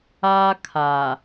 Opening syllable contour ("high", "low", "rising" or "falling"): high